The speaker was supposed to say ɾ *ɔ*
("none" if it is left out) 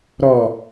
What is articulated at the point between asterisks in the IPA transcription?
ɔ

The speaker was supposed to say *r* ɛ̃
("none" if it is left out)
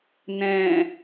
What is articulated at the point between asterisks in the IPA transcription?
n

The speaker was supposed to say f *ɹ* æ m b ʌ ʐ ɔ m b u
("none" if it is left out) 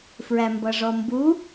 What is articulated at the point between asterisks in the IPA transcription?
ɹ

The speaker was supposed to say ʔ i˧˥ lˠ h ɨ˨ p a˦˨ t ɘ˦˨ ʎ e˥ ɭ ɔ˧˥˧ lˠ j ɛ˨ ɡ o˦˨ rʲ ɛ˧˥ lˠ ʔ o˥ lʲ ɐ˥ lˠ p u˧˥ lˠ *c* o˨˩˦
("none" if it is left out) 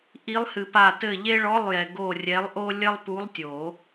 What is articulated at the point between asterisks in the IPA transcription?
tʲ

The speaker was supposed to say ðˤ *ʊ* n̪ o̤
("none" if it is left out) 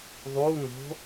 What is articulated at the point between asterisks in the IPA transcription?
u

